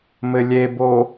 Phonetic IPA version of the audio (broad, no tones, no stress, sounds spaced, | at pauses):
m ɘ lʲ e b o